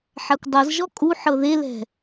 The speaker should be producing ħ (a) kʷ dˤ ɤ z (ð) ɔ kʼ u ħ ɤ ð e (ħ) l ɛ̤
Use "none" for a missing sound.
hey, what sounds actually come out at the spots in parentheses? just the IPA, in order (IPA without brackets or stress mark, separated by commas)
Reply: a, ʒ, none